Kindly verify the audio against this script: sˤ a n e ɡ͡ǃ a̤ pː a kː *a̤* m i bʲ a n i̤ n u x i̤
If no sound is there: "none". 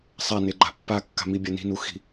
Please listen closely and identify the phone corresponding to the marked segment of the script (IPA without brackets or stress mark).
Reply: a̤